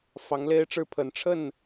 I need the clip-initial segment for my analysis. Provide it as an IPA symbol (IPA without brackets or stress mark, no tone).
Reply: f